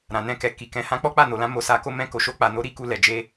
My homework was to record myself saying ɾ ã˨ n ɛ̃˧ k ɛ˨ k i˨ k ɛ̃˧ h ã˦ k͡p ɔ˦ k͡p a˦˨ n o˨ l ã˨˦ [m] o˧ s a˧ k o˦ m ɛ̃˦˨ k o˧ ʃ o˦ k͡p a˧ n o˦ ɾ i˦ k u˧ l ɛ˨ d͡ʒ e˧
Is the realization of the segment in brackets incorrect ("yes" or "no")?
no